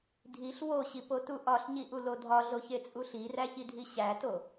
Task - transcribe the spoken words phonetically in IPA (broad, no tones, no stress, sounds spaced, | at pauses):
dʱ i ɬ w o ɕ i p o t u ʔ ɒ ɬ ɲ i ʔ u l o dʱ ɒ ɮ o ç e t͡sʼ u ɬ i r æ ç i dʱ i ɕ æ t o